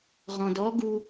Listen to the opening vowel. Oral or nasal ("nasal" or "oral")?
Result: nasal